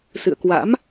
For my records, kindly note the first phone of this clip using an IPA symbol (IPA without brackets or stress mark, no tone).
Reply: s